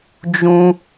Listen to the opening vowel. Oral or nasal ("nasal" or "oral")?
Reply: nasal